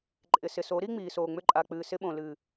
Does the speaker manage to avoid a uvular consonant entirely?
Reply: yes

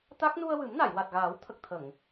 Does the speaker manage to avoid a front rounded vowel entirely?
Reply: yes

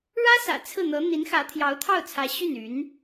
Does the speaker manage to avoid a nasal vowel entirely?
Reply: yes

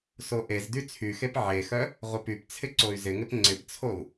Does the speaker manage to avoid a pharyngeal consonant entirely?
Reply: no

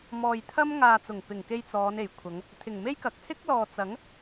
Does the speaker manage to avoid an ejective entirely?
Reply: yes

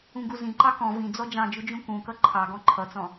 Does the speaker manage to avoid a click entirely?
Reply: no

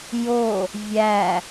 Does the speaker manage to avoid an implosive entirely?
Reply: yes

